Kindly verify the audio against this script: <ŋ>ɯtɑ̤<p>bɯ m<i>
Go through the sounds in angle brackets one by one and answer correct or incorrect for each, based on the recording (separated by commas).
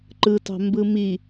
incorrect, incorrect, correct